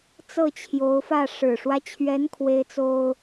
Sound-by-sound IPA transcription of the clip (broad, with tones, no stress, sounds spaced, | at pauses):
t͡s ɤ˥˩ t͡ɕʰ j o˧˥ ʊ̯ f ä˥˩ ʂ ɻ̩˨˩ ʂ w ä˦ t͡ɕʰ ɥ ɛ˧˥ n kʰ w e˥ ɪ̯ t͡s o˥ ʊ̯